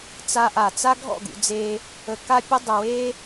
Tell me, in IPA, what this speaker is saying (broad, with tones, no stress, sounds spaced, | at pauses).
t͡s a˧ ʔ a˨ t͡s a˦ ɡʱ ɔ̰˦˨ ɡ ṵ˧ d͡z e˧ | ə˨ k a˧ pʲ ə˧ dˤ ə˨ w e˧